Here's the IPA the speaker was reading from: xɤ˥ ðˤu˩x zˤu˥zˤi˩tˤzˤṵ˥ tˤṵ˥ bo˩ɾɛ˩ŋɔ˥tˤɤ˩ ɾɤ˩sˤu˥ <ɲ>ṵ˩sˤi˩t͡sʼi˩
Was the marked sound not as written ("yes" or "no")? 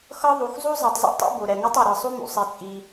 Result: yes